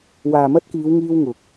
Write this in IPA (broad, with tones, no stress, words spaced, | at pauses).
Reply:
waː˨mɐ˥t̚kiː˨˧w ŋiː˥wŋʊ˨k̚